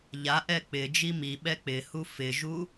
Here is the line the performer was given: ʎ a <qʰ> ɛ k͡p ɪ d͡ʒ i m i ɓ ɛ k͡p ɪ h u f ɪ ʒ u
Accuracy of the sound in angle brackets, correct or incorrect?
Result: incorrect